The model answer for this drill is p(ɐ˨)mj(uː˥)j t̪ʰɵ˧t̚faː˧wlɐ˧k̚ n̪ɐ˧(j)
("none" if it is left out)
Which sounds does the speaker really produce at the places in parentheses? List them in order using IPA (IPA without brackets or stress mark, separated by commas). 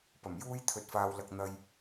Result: ɐ˨˩, uː˥, j